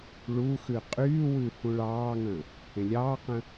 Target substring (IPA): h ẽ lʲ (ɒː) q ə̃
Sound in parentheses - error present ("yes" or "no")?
yes